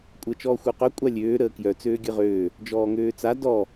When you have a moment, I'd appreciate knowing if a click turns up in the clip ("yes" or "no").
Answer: no